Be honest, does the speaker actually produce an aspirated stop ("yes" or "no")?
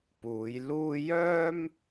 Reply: no